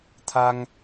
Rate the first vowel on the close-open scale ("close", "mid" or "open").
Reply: open